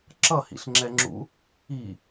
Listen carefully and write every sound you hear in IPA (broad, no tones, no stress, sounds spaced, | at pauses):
ǁ ʌ h ḭ ɬ ŋ͡ǁ ɛ ŋ͡ǁ ṵ | i